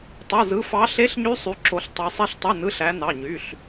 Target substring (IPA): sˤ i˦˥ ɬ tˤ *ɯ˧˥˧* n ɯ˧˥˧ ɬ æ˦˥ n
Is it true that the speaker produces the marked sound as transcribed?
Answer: yes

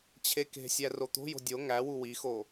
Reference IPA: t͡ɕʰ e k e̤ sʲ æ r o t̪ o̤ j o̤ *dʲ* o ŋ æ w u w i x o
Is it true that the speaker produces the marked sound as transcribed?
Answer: yes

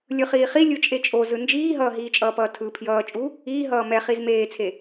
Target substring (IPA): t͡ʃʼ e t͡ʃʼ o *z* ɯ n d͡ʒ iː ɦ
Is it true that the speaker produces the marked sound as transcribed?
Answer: yes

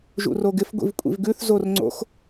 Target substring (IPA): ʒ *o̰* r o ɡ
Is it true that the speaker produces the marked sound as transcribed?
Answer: no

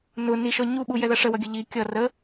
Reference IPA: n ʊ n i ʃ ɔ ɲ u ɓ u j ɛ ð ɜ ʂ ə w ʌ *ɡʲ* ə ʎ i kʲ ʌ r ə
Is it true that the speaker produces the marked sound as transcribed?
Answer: yes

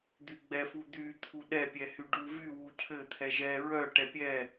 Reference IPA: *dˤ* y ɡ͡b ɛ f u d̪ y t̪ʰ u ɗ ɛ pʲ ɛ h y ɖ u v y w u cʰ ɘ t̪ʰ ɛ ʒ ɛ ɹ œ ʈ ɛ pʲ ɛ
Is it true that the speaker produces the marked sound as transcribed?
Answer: no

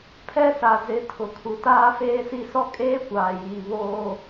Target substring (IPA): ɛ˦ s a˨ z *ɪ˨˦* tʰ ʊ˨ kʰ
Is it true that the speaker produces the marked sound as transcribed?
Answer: yes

